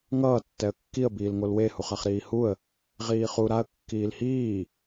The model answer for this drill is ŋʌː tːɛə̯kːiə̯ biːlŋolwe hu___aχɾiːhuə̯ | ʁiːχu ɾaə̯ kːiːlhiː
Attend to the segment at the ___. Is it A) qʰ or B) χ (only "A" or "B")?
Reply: B